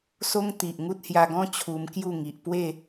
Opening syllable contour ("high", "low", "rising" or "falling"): high